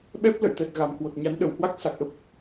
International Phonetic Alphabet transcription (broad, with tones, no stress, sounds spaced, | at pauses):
ɓ ɛ˦˥ p̚ l ə̰˧˨ j t̪ ɛ˨˩ t̚ ɣ a˨˩ m h w o˨˩ t̚ ɲ a˨˦ n ɗ ə˧˩ w h w a˦˥ k̚ s a˨˩ k̚ ʔ ə˦˥ p̚